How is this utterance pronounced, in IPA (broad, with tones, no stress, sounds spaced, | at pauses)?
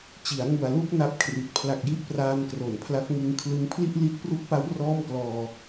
t͡ɕ i˩˦ a̯ ŋ u˨˩ a̯ l u˥˩ k̚ n a˦˥ p̚ kʰ r i˨˩ t̚ pʰ l a˨˩ k̚ j i˦˥ ʔ p r aː˧ n k r o˨˩ n pʰ l a˦˥ k̚ ŋ ɯ˧ ŋ kʰ l ɯ˦˥ ŋ pʰ l i˥˩ ʔ l i˦˥ t̚ p r u˦˥ k̚ p a˦˥ w r ɔː˥˩ m k l ɔː˧